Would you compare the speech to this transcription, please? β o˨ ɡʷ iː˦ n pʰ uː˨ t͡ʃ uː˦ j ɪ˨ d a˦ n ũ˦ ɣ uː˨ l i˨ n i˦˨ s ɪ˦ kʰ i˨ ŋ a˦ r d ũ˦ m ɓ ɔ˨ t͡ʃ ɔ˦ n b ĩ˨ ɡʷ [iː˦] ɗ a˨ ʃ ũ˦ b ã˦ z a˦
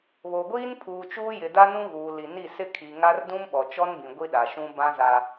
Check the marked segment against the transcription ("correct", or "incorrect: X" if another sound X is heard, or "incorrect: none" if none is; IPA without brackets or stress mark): incorrect: i˦